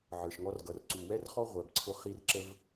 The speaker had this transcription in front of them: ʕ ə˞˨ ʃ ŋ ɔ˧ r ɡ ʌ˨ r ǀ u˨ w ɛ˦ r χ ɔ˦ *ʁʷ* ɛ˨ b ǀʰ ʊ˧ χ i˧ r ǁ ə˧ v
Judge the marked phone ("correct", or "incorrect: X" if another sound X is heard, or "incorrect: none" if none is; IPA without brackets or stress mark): correct